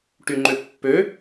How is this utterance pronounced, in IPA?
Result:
ʈyŋ͡ǃøpːø

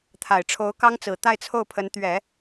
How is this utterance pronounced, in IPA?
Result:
t̪ʰa˨˩ɪ̯ʈ͡ʂʰo˧˥ʊ̯kɑ˥ŋt͡sɹ̩˨˩ t̪a˥˧ɪ̯t͡sʰo˥˩ʊ̯pʰə˧˥nt̪ɥɛ˨˩˦

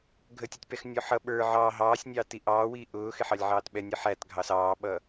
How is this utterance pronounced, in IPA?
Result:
ɡʱətʲʌtʲpɛxnʲɔ ħʌ ɓə˞ ʕɑː ɦɑːsʲnʲɑːti ʔɑːwiː ʔʊːxɪħɑlʲʕɑːt ɓɛnʲə ħætɡʱɑ sɑːɓʌ

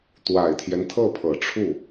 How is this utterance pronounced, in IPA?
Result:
t̪wa˨˩ɪ̯t̪ʰjɛ˦nt̪ʰɤ˥˩pʰɤ˨˩ ʈ͡ʂʰu˥˩

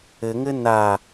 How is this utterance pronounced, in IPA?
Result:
ɘŋɘ na

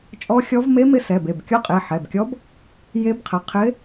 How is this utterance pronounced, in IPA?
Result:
t͡ʃʼɔ˧˥xʲɔ˧˥v me˧˥mɪ˧˥ sɛ˩˧˩be˩˧˩b kʲɔ˧˥qʼe˩˧˩ħɛ˩˧˩bkʲɔ˧˥b | je˧˥bqʰə˩˧˩ qʰɪ˧˥

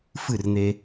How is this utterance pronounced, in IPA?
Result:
fɨ˥˨rn̪e˧

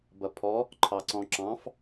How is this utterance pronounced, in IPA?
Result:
bɐpʰɔ | ǃʰɑǀɔ̃ǁɑ̃f

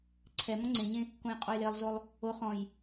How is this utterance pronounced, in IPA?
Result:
ǀʰɛmɔ̃ ŋ͡ǀẽɲẽ | kõjqʼojlelˠzolˠ | o χɔ̃j

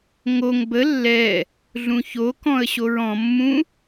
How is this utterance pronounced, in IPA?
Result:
ŋoŋ bə lːɛ | ɮũçokɔ̃ə̯ ɕoɹɔ̃mːũ

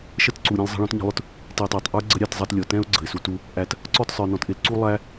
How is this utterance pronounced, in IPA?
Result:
ʃə˦tǀu˨ɾʲɛ̃˧l zˤə̤˧ɭɔ̃˨˦tɲə̤˧lˠʊ˦t | ti˨tˤɑ˨tˤ ʔə˞˦ ɡ͡ǀə˦ɾʲɑ˧tzˤʌ˧tlʲɔ˨ tɛ̃˦ʊ̯ ɡ͡ǀə̤˨ɪ̯su˧tu˦ | ʔæ˧t | ǀɔ˦˨tsˤə˞˨nɔ̃˨tʔɪ˧l ǀu˦lˠæ˦

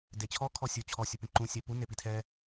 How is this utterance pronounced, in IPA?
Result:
det͡ɕʰɔ kʰɔsʲo t͡ɕʰɔ sʲʊpẽǃũ sʲapu nepitʰɛ

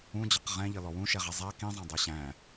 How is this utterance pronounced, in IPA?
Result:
ũd͡ʑʌq ʁɛ̃ʎʌlɔ wũʃɛʁɛ zˤæ kĩzˤɛ̃dˤɛ ɕæ̃

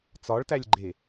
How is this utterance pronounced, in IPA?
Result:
t͡sɒɭtælʲɡ͡ǃe

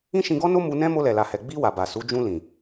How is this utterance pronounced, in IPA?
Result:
ĩ˦ʃĩ˧ɡɔ˦no˦ mu˧nɛ̃˦ mo˧lɛ˨la˨hɛ˨ ɡ͡bi˧ wa˨ba˨su˨˦ d͡ʒũ˧lĩ˨

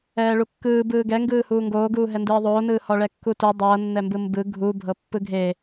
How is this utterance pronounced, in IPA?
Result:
ɛːɭukːɯː bɯːɡɛ ŋɡɯːhuːŋɡoːɡuː ɦɛndɯːðˤoːnɯː hɔɭɛkːutu dˤɤːnːɛmbɯ mbɯ ɡʱu bʱɤpːɯɡʱe

